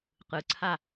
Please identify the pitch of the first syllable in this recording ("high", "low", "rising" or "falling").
low